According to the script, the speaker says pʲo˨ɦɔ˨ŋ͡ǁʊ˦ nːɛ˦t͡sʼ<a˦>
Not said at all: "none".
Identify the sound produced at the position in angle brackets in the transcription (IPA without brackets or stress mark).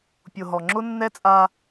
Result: a˦